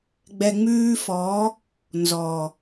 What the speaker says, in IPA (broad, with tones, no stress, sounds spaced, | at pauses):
ɡ͡b ɛ˨ ŋ͡m ʉː˧ f ɔ˨˦ | n z ɔ˨